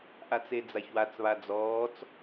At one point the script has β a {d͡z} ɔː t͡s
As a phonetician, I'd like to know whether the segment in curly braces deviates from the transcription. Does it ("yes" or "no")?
no